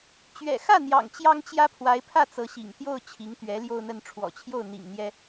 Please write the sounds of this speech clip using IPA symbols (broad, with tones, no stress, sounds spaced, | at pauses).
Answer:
t͡ɕ ɥ ɛ̰˨˩ x ä˥˩ n̪ j ɑ̰˨˩ ŋ t͡ɕ j ɑ˥ ŋ t͡ɕ j ä˥ pʰ w a˧˥ ɪ̯ pʰ ä˥˩ t͡s ɤ˧˥ ɕ ḭ˨˩ ŋ t̪ j o˥˩ ʊ̯ t͡ɕʰ i˧˥ ŋ t̪ ɥ ɛ˧˥ l j o˥˧ ʊ̯ n̪ ə˥˩ n ʈ͡ʂʰ w ɔ̰˨˩ t͡ɕʰ j o˥˩ ʊ̯ n̪ ḭ˨˩ ŋ n̪ j ɛ˥